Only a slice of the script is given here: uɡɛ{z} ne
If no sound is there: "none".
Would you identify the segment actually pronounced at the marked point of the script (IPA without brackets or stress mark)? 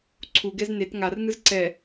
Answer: z